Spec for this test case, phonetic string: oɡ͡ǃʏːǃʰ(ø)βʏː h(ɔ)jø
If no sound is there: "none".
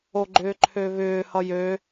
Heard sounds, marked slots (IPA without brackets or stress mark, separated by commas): ø, ʌ